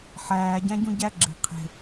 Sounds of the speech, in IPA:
ħ æː ɟ æ̃ ɟ ũ ɟ æ ɡ͡ǁ e̤ qʰ e̤

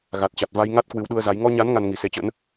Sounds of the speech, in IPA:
ɣ a˨˩ t̚ t͡ɕ a˨˩ t̚ v a˧ j ŋ a˦˥ t̚ k w ɨ˨˦ w ɗ u˧ ə̯ z a˨˦ j ŋ ɔ˧ ɲ a˨˦ n ŋ a˧ n ŋ i˨˩ s e˨˦ t͡ɕ ə̰˧˥ n

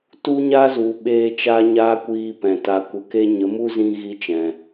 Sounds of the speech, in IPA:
t u˦ ɲ a˦ z u˨ ɓ eː˧ t͡ʃ a˦ ɲ aː˦ kʷ iː˧ p ɛ̃˨ t a˨ kʷ ə˨ k e˧ ɲ ə˨˦ m u˦ z ĩ˧ ɣ i˧ t͡ʃ ɛ̃˨

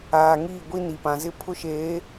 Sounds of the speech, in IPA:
aː˨ ŋ iː˦˨ ɡʷ i˦ n i˨ p ã˨ z ɪ˦ pʰ ʊ˦ ʃ eː˨˦

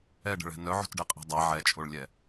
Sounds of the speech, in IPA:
ɛ ɖ ə̤ ɭ ɛ̤ n œ ʕ o̤ t ɖ ɛ qʼ ɛ̤ dˤ a ʕ ɛ t͡ʃʼ o ɭ lʲ ɛ

